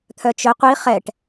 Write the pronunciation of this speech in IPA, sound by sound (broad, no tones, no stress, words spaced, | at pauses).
t̪ʰœt͡ʃœ qʷi χɛʈ